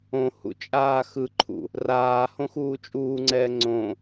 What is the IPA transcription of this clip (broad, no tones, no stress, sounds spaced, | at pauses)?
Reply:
õ h ṵ t͡ʃʼ aː x ɯ ǃʰ ṵ | r aː h õ x uː t͡ʃʼ uː ŋ͡ǀ ɛː ŋ͡ǀ õ